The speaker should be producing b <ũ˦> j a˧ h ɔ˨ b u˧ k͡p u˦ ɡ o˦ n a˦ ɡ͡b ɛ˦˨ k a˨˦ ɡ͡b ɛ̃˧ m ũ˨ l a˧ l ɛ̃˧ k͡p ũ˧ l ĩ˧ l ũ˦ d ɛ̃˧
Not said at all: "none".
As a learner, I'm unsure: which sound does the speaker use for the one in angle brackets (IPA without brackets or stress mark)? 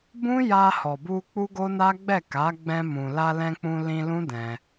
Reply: ũ˦